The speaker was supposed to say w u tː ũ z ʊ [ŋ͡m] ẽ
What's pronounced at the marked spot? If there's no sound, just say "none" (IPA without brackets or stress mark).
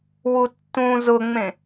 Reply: ŋ͡m